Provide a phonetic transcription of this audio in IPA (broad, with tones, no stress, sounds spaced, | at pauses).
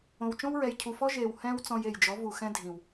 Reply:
õ˨ w t͡ʃ õ˦ w ɹ ɛ˨ j cʰ u˨ f ɔ˦ ʒ eː˨ w h ɛ̃ː˦ w t͡s ɔ̃˧ j e˨ j d͡ʒ ɔ˨˦ v u˨ x ɛ̃˦ dʱ ĩ˨ w